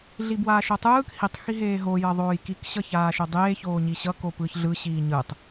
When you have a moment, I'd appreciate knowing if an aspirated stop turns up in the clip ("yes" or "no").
no